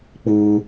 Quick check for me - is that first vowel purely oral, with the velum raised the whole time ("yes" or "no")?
yes